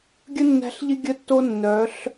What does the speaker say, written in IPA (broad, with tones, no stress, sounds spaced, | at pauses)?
ɡʲ ə˦ nː æ̤˧ ɬ ʎ ɪ˦ ɡʲ ə˧ tː o˧ nː œ˨˦ ɬ